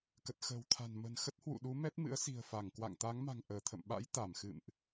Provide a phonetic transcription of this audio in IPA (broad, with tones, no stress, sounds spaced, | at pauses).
k ə˨˩ t̚ x ə̤ː˨˩ w t̪ʰ a̤˨˩ n m ə̤˨˩ n x ə˦˥ t̚ h w ṵ˧˨ ɗ u˨˦ m ɛ˦˥ t̚ m ɨ̰˧˥ ə̯ s i̤˨˩ ə̯ f a˧˩ ŋ k w a̰˧˨ ŋ t̪ a˨˦ ŋ m a̤˨˩ ŋ ʔ əː˧˩ t̪ʰ ə̰˧˨ m ɓ a̰˧˥ j t̪ a˧˩ m x ɨ̰˧˨ m ʔ